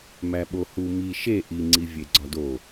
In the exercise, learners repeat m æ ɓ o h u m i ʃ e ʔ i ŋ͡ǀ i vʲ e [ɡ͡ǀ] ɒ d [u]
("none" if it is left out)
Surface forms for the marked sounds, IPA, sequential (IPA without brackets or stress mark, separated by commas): ɡ͡ǀ, o